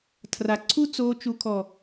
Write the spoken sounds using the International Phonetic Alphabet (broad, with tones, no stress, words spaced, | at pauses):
tʰra˨ǀʰu˦t͡soː˧ t͡ʃu˨kʰɔ˨